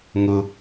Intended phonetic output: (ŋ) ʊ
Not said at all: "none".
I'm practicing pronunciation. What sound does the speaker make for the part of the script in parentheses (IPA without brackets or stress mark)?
ŋ